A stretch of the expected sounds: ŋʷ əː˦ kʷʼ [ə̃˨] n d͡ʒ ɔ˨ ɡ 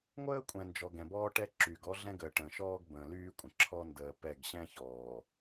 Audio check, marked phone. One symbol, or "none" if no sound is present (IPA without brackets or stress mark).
ɛ̃˨